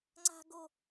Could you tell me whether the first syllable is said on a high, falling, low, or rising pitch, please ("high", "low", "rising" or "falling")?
high